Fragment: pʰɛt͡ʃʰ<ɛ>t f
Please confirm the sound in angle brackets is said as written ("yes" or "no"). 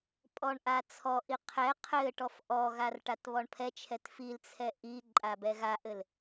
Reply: yes